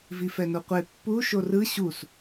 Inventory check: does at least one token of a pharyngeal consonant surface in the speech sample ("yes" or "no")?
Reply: no